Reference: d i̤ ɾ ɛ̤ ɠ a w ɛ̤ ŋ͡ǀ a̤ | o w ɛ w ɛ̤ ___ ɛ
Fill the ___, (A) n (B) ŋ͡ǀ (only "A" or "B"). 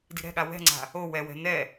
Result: A